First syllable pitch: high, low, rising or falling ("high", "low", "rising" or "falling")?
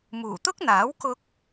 low